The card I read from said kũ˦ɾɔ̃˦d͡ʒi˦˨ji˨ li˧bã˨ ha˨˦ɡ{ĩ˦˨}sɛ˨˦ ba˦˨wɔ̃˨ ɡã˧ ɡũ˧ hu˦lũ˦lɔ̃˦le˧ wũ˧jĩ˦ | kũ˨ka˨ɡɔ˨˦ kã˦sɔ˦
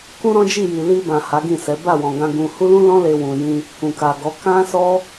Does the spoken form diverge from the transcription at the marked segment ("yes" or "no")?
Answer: no